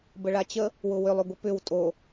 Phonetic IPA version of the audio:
b ə ɭ a t͡ɕ ə | w ʊ w ʏ lˠ ʏ ɡʷ ə p ʏ w tʼ o

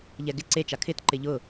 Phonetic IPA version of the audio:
ʎ ɛ ɡ ɪ ǀ e t͡ʃ a kʰ ɪ t ǃ ɪ ʎ ʊ

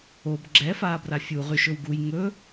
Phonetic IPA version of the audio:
o b ɡ͡ǁ ɛ f aː b r a fʲ u ʁ y ʃ ɵ w ɡ u j ŋ ɵ

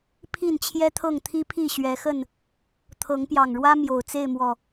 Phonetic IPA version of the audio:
pʰ i˥˨ n t͡ɕʰ j ɛ˦ t̪ʰ ɤ˥˨ ŋ t̪ʰ i˦ pʰ i˥˨ ɕ ɥ ɛ˨˦ x ə˥˨ n | t̪ʰ ɤ˨˦ ŋ p j ɑ˨˩ ŋ ɻ w ä˦ m j o˨˩ ʊ̯ t͡s e˥˨ ɪ̯ m w ɔ˨˩

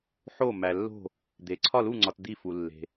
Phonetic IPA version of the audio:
ħ o˦˨ m æ˨ lː o̤˦˨ | d̪ e˨ ǀʰ ɒ˦˨ l u˦˨ ŋ͡ǀ ɒ˨ t d̪ i˦˨ f u˨ lː e̤˨

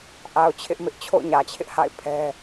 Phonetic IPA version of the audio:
ʔ a˨ ʊ̯ t͡ɕʰ ɪ˦ ʔ m ɪ˦ ʔ t͡ɕʰ o̰˦˨ ʊ̯ ɲ ä˨ t͡ɕʰ ɪ˦ ʔ h a̰˦˨ ɪ̯ pʰ ɛ˦

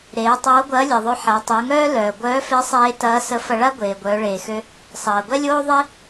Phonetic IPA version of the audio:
ɾ eː˩˧ tˤ oː˧˥ ɡʷ ɐː˧˥ lʲ e˩ ðˤ ø˧ ħ a˩˧ tˤ o˩˧ ŋ œː˥ l œː˩ ɡʷ œː˧˥ f e˧˥ sˤ eː˧ t ɐː˧˥ s ə˧˥ f ɐ˧ ɭ a˥ ɡʷ eː˩ ɡʷ œː˩˧ ɭ eː˩ x ø˧ | sˤ ɐː˩ ɡʷ ɛ˥ lʲ oː˥ ðˤ e˥

